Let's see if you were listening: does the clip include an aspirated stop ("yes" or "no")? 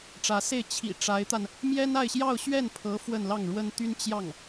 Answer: yes